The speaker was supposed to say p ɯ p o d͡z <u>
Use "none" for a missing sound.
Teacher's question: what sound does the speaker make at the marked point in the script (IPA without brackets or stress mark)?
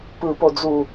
u